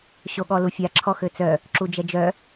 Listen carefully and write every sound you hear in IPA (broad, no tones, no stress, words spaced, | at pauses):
ɕoɠɔlufʲa ǁʰɔxøt͡sœ | ǁud͡ʒɛd͡ʒœ